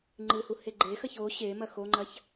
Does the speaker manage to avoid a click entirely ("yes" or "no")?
no